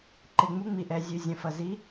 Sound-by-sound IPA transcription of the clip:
ǃ ɪ˨˩ ŋ͡m u˨˥ ŋ͡m i˨˩ ʔ ɛ˨˩ zʲ ʉ˨˩ zʲ ɐ̃˨˩ f ɐ˨˩ z i˨˥

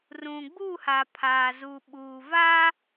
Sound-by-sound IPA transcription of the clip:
r ũ˨ ɡ͡b uː˦˨ h a˨ pʰ aː˨ z uː˨ ɓ uː˨ v a˦

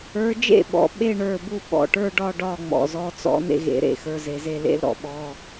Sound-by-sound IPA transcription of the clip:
ə˞˨˦ d͡ʒ ḛ˥˩ ɓ ɔ̰˩˧˩ ɓ e˥˧ ɳ ə˞˩˧˩ b u˥˩ ɓ ɔ̰˩ ʈ ə˞˥˧ ɖ ɒ˥˧ ɖ ɒ˥˩ ŋ͡m ɔ̰˩ z ɔ˨˦ t͡s ɔ̰˨˦ n ḛ˥˩ ɣ ḛ˨˩˦ ɾ ḛ˩˧˩ x ə˞˩˧˩ z e˩ z e˥˩ l ḛ˥˧ l ɾ ɔ̰˥˩ ɓ ɔ˩˧˩

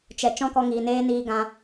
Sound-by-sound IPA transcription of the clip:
t͡ʃ ɛ˨ t͡ʃ ɔ̃˦ k ɔ˧ ŋ iː˨ n eː˦ n iː˧ ɡ ã˧

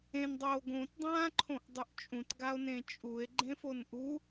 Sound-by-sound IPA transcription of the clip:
ẽ n dˤ oː ɡ õ t dˤ ãː ǃʰ õ ʔ dˤ ɯ ʔ t͡ʃʼ ũ t ɡ a o̯ n ẽ t͡ʃʼ u e̯ ɡ͡ǃ ẽ f o n ʔ u

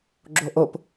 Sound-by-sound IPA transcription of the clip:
ɡ͡ǁ o ʔ o p

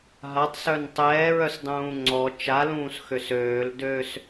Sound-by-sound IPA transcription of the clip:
ɦ a tˤ s œ n tˤ ɛː ɹ œ s dˤ ũː ŋ͡ǀ ɔ t͡ʃ a l ũː s x ø s øː l d ø s

